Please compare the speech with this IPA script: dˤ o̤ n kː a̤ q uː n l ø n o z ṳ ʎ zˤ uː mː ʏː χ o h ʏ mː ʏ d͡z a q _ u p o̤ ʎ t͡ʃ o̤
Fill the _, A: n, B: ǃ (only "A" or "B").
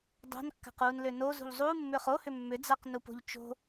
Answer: A